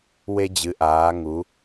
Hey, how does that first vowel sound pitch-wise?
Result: high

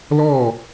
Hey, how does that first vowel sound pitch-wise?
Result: falling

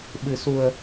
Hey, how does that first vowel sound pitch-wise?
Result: low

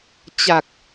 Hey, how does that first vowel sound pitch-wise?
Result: low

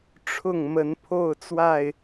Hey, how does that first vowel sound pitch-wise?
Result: falling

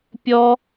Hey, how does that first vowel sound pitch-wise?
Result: high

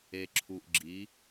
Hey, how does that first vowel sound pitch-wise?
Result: low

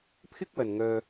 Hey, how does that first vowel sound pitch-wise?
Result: high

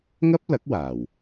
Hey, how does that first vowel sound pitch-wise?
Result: high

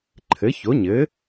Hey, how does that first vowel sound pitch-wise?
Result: rising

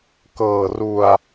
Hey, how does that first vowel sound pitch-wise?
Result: low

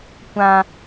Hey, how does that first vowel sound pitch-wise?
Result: high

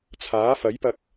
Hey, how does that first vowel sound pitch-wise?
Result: rising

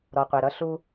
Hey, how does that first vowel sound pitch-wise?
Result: low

